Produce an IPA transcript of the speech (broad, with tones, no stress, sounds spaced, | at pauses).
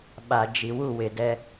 ɓ a˨ d͡ʒ i˨ w u˦˨ w ɪ˨ d ɛ˦